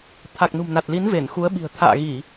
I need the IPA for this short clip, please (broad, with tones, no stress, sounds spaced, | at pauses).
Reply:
t̪ʰ a˨˩ k̚ n ṳ˨˩ m n a˨˩ t̚ l i˨˦ n v e˧˩ n x u˨˦ ə̯ ɓ i̤˨˩ ə̯ t̪ʰ a̰ː˧˨ ɣ i˧˩˨